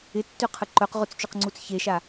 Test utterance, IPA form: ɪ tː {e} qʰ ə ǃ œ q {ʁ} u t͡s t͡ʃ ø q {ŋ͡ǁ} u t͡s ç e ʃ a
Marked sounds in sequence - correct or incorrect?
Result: incorrect, correct, incorrect

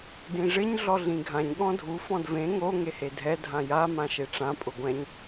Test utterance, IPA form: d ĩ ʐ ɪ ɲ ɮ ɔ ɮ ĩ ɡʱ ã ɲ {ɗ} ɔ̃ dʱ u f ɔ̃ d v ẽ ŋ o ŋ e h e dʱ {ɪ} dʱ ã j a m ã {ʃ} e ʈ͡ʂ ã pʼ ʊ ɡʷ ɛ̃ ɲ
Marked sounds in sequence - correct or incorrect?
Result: incorrect, incorrect, correct

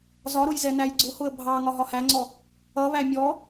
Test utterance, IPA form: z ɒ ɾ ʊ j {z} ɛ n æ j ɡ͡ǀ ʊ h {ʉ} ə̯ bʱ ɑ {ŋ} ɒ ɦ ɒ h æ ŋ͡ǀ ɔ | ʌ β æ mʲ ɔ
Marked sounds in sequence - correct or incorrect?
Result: correct, incorrect, correct

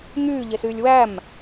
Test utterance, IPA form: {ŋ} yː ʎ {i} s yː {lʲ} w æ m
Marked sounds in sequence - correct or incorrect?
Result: correct, incorrect, correct

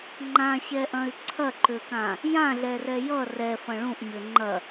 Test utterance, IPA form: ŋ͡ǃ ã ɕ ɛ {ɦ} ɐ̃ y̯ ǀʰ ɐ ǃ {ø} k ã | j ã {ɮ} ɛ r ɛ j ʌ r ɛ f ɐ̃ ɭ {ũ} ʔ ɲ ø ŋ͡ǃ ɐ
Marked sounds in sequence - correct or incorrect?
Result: incorrect, correct, correct, correct

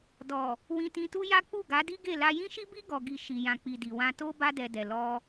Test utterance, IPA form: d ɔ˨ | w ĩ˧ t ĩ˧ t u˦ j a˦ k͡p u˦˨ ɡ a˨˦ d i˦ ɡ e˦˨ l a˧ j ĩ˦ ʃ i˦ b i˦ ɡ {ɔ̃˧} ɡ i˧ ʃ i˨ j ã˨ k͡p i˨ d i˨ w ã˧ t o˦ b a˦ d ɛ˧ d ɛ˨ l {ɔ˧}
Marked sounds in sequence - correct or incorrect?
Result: incorrect, correct

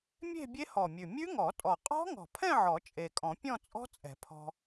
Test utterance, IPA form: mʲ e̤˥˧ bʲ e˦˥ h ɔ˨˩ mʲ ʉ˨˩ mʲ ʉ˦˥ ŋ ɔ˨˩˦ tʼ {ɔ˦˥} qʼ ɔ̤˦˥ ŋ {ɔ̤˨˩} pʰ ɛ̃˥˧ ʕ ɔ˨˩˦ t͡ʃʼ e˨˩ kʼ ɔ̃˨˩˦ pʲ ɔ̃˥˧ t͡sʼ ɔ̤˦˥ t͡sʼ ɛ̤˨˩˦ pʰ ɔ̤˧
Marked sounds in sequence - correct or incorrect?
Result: incorrect, correct

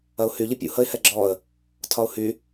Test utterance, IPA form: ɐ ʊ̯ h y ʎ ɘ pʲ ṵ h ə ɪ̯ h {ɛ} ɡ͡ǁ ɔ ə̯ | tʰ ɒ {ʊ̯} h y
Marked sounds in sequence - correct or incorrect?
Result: correct, correct

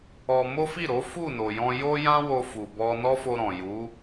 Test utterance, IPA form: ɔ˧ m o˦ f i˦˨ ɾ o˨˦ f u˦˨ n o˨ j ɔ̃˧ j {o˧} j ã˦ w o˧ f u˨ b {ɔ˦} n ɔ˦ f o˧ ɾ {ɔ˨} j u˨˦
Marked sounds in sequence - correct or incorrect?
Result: incorrect, incorrect, incorrect

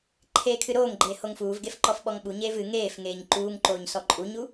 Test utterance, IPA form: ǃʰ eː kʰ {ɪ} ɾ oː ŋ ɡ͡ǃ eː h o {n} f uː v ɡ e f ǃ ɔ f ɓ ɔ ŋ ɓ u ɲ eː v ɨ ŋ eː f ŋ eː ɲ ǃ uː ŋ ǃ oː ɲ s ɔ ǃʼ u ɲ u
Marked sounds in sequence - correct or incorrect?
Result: incorrect, incorrect

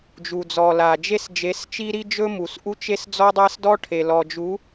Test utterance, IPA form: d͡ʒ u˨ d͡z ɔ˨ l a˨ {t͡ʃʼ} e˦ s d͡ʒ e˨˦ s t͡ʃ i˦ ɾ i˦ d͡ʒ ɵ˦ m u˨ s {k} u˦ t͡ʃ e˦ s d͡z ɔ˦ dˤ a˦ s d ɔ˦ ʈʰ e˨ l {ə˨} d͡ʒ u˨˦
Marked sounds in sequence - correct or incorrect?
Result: incorrect, incorrect, incorrect

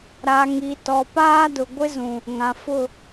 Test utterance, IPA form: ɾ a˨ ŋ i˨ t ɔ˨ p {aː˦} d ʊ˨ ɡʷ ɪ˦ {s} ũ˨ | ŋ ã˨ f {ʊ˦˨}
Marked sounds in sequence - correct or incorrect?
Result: correct, incorrect, correct

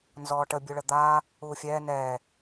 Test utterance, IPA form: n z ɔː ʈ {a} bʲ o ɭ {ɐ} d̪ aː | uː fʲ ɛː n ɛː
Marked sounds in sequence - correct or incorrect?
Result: incorrect, incorrect

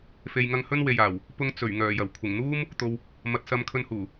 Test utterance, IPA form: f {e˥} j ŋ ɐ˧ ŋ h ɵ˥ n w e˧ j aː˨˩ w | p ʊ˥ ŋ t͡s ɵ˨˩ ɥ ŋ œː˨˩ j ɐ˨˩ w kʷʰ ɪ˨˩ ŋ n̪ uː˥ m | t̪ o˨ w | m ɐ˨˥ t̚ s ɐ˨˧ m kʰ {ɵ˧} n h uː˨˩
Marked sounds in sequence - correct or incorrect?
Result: incorrect, correct

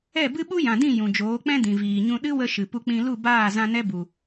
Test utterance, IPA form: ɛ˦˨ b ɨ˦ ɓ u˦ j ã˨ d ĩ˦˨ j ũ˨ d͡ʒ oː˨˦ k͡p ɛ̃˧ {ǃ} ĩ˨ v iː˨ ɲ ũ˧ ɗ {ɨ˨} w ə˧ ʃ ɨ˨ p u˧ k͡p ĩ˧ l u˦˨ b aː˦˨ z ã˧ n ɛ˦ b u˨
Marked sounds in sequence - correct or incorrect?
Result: incorrect, incorrect

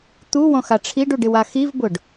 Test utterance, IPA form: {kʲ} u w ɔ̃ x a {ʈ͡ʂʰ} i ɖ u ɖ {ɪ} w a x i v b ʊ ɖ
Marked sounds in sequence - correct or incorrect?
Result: incorrect, correct, correct

